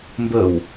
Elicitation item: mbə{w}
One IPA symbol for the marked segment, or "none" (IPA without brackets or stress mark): w